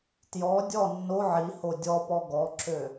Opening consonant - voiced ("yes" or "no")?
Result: no